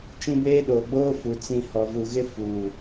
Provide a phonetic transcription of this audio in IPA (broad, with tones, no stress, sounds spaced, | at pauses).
t͡ʃ ĩ˦ b eː˦ ɗ oː˨ ɡ͡b oː˦ f u˨ t͡s ĩ˨ h ɔ˨ v u˨ ɣ ɪ˦ f uː˨